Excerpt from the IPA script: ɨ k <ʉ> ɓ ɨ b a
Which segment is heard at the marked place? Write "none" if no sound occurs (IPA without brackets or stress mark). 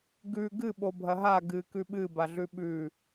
ʉ